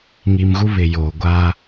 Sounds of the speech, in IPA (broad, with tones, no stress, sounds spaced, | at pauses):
ŋ i˨ m ɣ u˦ β ɪ˨ j oː˨ ɡʷ aː˦